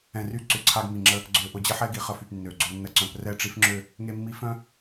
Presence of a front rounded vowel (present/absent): present